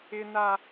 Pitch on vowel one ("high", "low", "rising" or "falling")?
high